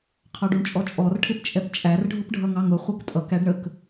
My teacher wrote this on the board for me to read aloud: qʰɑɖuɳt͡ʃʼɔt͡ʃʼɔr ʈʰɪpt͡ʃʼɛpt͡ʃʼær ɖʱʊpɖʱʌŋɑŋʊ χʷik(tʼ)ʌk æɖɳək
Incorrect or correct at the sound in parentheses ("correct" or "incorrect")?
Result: correct